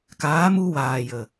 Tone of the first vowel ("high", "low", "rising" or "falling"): rising